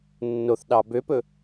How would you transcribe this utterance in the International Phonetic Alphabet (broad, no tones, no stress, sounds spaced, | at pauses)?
nː o θ ɗ ɑ b ø p ɵ